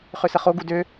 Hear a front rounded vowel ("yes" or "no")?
yes